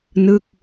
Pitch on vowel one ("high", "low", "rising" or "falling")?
falling